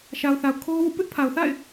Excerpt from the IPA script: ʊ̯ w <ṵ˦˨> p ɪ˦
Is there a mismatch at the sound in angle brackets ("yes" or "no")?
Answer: no